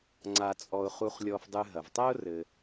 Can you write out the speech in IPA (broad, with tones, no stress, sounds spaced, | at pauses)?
ŋ͡ǀ a˨ t͡sʼ ɔ˨ ʊ̯ χ u˨ χ lʲ ɔ˨ f dˤ ɨ˨ ɦ ɐ˩ v tˤ ɛ˥ ʊ̯ r ɘ˨